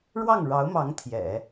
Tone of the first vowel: falling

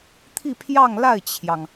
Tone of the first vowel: falling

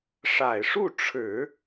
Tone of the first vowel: low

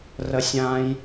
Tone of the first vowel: low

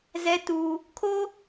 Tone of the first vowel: high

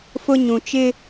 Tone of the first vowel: high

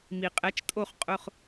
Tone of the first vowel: low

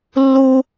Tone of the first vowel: high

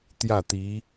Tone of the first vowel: falling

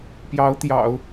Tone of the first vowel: rising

